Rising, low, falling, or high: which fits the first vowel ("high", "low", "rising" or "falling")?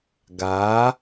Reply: rising